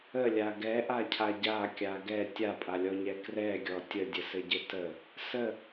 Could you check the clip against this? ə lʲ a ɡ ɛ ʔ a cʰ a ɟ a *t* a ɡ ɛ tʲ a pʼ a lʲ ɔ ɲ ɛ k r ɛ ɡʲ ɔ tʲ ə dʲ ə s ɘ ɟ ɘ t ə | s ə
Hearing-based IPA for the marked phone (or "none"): kʲ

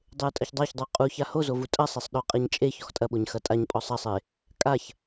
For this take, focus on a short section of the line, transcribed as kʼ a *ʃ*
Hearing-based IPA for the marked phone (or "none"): ç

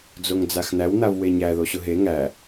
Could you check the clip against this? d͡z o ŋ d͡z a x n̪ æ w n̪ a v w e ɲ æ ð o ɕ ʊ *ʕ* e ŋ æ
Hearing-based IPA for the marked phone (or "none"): ɦ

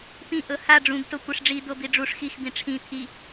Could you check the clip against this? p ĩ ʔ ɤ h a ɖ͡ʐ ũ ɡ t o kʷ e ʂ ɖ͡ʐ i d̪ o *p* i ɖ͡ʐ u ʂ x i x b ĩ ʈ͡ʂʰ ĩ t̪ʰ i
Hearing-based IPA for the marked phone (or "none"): b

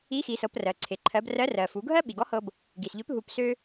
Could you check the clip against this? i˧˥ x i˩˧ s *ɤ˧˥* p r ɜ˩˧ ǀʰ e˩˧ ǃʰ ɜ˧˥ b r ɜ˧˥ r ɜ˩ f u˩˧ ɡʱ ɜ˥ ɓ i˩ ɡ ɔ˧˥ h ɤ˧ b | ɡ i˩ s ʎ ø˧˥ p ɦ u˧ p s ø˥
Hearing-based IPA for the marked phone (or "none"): ɤ˩˧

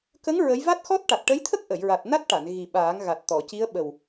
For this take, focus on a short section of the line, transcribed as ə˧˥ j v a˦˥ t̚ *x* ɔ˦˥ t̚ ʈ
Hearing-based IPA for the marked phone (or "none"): x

